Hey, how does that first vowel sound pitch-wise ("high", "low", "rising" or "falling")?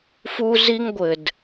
high